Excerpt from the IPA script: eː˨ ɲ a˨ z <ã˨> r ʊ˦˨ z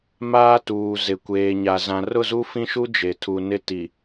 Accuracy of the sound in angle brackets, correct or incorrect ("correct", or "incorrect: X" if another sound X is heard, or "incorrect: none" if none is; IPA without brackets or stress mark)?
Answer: correct